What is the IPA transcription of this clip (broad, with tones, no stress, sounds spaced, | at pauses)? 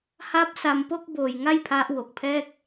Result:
h a˦˥ p̚ s a˧ m p o˥˩ k̚ b oː˧ j ŋ a˥˩ j pʰ a˦˥ ʔ w o˨˩ k̚ pʰ ɛː˥˩ k̚